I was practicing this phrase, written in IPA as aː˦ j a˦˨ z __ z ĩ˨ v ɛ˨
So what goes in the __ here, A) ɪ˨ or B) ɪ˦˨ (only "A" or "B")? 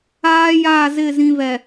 B